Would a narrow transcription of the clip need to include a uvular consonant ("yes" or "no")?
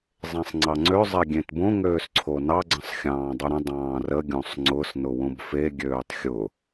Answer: no